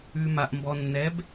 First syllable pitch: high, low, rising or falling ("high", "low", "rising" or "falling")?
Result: low